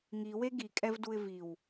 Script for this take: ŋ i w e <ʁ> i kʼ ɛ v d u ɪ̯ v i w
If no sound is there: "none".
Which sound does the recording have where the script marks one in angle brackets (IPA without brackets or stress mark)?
ɡ